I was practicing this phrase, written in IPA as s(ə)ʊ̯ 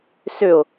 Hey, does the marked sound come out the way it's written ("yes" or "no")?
no